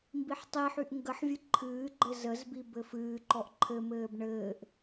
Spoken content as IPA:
mbiħtˤiħyʔ ŋɡəħvʲɨ ǃʰɨːɡ͡ǃɘ zəzbi bɘfɨːǃɔʔ ǃʰɘmɘːb ɳɘːʔ

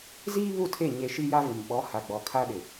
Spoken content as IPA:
ziː˦ βu˦˨tʰe˦˨ ɲe˦ ʃi˦ja˦vɪ˨m ɓɔ˨˦ha˨ ɡ͡bɔ˨kʰa˦ ɗɪ˨

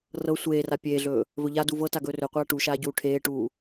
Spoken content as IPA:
rɤ sʷeːra pʲeːɮɵː | vɵʎadu vɤta ɡɵːrɵqʷaː ʈuʃaː ɟuːʈʰeːʈuː

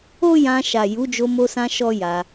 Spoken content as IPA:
o˦jã˧ʃa˨ ju˨˦d͡ʒo˧mo˧sã˧ ʃɔ˦ja˧

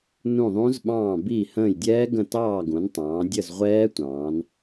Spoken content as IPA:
nũ˦˨ðˤũ˦˥z ɓɑ̃ː˦˨ biː˦˨hə̃ː˦˨j dʲɛː˦˥ɡə̃˦˨ tɑː˦˨ɡũ˩˧n tˤɑ̃ː˩˧dʲə˦˨z ʁʷɛː˦˥tʷɑ̃ː˩˧n

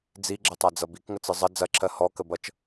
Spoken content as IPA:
d͡ziɡ͡ǁətˤad͡zʌ bikŋət͡sɯ zˤə d͡zɐǁʰɜ hɔkəbʌt͡ʃ

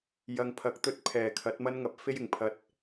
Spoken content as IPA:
jɐ˨ŋpʰɐ˨˥k̚ t̪ɵ˧t̚ pʰɛː˨˩kʰɐ˨˥t̚mɐ˥n ŋɐ˨˥p̚fe˥jɪ˨˩ŋpʰɐ˧t̚

